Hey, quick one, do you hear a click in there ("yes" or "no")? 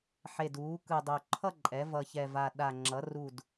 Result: yes